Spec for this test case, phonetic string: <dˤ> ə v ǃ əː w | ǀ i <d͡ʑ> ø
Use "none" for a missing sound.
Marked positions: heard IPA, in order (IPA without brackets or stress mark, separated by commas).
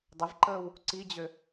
dˤ, d͡ʑ